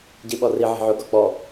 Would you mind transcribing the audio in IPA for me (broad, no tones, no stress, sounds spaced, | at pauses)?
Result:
ɟ i ɓ ɔ r i ʕ i̤ ʕ ʊ ɡ ɔ k͡p ɔ